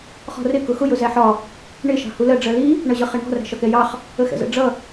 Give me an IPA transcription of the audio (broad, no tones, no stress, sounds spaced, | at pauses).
χ ɔ̤ r ɪ k ʊ x ʊ j ʊ z æ ħ ɒ | ɳ ɪ ʃ ɑ̤ h u l ɜ ɖ͡ʐ ɜ l i | ɳ ʌ ʑ ʌ χ ɛ ɳ ɔ̤ r æ̤ ʃ ɒ k ɛ j ɑ χ | ə x ɛ̰ z ə̰ ɖ͡ʐ ʌ